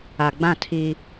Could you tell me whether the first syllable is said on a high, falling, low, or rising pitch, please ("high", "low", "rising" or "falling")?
low